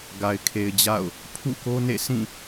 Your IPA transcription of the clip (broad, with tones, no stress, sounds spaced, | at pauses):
ɡ a˨ ɪ̯ kʰ e˨ ɪ̯ d͡ʑ a̰˦˨ ʊ̯ | pʰ ṵ˦˨ k o˦ n ḛ˦˨ sʰ ĩ˦˨